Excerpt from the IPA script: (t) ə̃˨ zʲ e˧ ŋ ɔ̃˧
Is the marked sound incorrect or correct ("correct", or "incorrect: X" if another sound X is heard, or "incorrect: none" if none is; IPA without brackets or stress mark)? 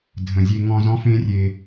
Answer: incorrect: dʱ